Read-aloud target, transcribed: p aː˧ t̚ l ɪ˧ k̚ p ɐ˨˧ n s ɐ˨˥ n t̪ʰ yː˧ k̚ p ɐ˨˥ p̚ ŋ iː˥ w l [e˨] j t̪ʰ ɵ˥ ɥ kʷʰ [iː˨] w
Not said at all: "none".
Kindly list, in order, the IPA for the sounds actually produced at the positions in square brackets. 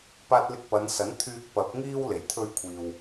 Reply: e˨˩, iː˨

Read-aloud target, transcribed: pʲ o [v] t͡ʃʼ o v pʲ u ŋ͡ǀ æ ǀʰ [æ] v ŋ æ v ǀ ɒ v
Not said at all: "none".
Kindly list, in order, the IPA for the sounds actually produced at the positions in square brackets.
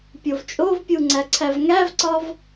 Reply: v, æ

